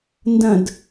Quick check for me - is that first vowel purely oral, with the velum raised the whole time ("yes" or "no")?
no